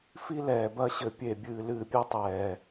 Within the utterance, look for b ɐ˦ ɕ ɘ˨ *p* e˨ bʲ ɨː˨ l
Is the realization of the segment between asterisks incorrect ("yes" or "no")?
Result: yes